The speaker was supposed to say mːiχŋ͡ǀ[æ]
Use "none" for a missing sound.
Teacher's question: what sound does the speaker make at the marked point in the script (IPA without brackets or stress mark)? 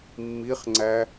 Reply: æ